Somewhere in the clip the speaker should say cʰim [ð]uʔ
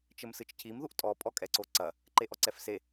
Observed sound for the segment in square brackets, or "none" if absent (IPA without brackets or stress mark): ð